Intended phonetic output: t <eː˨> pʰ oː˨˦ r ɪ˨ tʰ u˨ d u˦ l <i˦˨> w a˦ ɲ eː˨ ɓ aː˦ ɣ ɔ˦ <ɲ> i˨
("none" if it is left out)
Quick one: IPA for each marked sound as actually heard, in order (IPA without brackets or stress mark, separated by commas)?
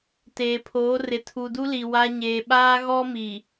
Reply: eː˨, i˨, m